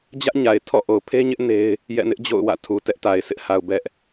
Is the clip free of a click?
yes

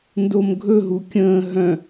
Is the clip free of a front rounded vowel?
no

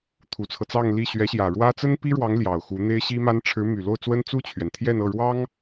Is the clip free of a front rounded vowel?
no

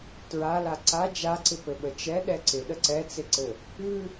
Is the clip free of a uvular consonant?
yes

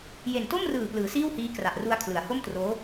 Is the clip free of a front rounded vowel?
yes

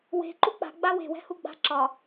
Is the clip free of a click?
no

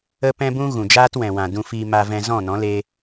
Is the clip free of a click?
yes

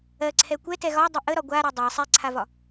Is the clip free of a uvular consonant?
yes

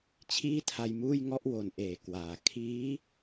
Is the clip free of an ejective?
yes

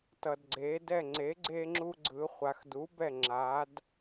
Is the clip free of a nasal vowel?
yes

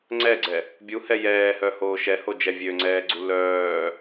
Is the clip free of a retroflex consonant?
yes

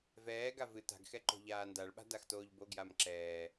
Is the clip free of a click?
no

